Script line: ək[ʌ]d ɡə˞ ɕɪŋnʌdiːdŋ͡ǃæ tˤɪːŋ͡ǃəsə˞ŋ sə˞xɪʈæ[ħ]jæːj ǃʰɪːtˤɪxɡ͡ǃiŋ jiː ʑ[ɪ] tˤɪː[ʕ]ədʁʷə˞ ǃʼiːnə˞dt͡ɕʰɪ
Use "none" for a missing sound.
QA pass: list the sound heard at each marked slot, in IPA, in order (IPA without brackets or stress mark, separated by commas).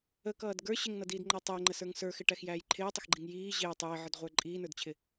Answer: ʌː, x, ɪː, ʕ